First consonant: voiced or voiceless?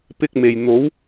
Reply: voiceless